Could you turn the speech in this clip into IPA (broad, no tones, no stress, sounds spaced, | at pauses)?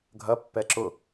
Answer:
ɡʱ ɐ pː ɛ ǁ ʊ